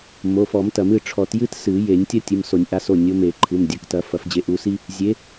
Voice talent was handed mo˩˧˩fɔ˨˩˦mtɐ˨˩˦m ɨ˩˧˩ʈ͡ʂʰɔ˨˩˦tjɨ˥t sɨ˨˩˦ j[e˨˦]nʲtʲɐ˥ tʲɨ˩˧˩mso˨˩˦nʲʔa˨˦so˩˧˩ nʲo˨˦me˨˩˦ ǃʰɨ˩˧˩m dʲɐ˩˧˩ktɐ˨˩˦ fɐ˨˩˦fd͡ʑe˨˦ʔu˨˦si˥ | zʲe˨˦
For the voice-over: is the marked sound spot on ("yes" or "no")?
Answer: no